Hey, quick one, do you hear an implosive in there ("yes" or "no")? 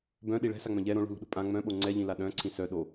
yes